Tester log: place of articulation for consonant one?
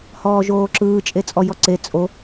glottal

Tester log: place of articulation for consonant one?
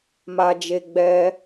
labial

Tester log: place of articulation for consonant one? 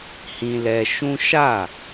glottal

